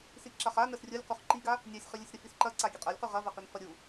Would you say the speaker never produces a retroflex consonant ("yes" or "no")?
yes